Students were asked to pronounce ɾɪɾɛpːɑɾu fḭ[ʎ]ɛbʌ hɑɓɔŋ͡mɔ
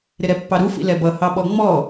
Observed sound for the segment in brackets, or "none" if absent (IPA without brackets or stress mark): l